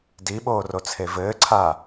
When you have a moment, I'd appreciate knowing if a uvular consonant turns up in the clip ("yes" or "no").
no